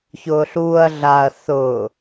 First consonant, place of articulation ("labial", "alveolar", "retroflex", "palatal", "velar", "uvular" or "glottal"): palatal